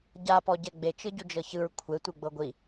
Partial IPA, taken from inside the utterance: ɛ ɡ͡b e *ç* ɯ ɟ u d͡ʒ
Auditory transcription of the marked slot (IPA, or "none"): t͡ʃ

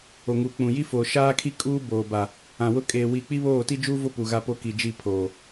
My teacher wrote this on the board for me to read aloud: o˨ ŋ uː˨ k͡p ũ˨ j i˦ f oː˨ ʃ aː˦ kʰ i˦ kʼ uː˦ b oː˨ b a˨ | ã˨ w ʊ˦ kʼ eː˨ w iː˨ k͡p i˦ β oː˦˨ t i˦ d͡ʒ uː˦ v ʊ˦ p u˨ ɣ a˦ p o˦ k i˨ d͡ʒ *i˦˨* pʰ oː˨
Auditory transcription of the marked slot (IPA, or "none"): i˦˨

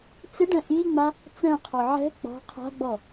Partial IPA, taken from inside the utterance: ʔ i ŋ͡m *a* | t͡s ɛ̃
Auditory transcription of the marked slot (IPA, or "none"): a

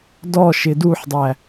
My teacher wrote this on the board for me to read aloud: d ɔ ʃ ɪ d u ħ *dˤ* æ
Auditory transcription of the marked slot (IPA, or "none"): dˤ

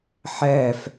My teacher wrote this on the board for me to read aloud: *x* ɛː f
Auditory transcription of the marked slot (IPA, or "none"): ħ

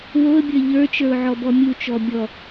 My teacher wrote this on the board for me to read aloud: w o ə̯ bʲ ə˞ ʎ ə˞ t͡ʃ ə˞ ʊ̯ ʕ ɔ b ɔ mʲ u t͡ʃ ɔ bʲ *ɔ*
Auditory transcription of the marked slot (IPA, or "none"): ɔ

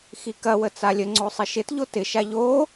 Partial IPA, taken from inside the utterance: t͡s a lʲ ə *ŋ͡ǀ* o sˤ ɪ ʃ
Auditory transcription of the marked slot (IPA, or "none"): ŋ͡ǀ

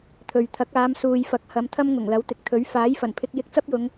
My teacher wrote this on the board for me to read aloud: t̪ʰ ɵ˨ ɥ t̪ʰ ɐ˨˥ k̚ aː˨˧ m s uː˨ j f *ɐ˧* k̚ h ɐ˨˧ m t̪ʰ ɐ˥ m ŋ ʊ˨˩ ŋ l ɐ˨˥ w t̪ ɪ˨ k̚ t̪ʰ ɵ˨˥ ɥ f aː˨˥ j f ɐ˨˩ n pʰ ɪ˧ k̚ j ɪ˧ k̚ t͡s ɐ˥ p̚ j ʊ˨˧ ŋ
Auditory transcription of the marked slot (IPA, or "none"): ɐ˨˥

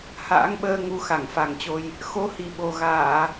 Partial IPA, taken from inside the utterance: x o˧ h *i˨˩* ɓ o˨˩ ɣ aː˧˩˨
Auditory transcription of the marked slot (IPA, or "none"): i˨˩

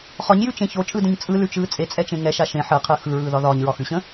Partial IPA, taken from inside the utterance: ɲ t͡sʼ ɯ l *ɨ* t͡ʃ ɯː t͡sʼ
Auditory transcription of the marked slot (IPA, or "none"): ʉ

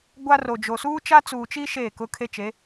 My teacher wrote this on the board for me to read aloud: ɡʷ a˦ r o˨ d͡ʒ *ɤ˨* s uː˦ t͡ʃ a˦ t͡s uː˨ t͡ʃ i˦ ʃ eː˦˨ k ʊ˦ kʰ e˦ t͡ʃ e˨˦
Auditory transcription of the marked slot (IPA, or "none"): o˨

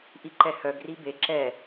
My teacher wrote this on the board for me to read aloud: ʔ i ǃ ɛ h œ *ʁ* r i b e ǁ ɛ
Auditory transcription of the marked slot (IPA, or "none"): ɡ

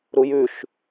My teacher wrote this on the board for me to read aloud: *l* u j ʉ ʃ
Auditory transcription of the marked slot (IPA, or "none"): ɾ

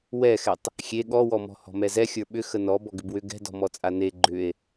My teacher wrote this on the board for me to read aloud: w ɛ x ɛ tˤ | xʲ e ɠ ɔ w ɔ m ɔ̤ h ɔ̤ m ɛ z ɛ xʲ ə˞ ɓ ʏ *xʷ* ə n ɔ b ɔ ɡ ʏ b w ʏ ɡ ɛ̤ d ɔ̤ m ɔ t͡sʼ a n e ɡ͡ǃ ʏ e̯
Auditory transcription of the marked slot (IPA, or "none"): x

